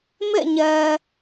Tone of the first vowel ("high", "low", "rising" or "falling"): falling